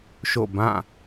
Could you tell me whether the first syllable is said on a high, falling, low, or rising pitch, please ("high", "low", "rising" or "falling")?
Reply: falling